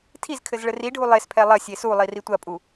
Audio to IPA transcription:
tʰizkʰɘz ɭɘriɖʱu lˠespʰɛ lˠɐ sʲesulˠi ritʷɐpʼu

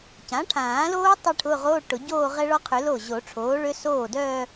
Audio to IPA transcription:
cã˩˥ʈʰãː˨˩˦loː˦˥ tˤœ˥˧ʈʰʊ˧˥˧ʁoː˧˥˧ ʈʊ˨˩˦ ɟoː˥˧ʁɛ˦˥ɭɔ˦˥qʰø˨˩˦ lo˥˩ ʑo˨˩˦ʈ͡ʂʰoː˩˥ɭø˦˥ soː˥˩dœː˥˧

